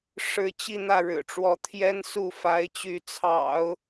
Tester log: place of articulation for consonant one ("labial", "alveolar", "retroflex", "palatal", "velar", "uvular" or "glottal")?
retroflex